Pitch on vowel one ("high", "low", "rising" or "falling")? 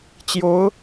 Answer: rising